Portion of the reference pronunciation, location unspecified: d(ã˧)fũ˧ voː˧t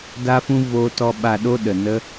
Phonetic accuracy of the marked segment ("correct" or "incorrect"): incorrect